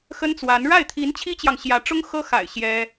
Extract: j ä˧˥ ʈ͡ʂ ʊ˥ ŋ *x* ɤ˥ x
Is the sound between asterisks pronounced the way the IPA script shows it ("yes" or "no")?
yes